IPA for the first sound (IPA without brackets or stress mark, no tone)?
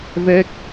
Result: v